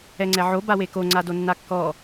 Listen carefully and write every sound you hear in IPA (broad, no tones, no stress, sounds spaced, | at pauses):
ɛ ŋ͡ǀ ɛ ʕ o b a w e k o ŋ͡ǀ a d o nː a kː ɔ